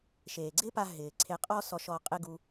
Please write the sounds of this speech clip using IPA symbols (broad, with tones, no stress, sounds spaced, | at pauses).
ʃ eː˨ ɡ͡ǀ ɪ˦ p a˧ ɦ ɪː˨ ǀʰ e˧ qʼ ɔ˦ s ɔ˧ ʃ ɔ˧ qʼ ɪ˦ ɡ u˧